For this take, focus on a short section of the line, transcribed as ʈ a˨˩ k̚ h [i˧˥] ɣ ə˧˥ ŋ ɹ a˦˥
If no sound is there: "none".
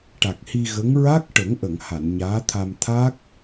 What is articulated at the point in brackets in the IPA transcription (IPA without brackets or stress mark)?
i˧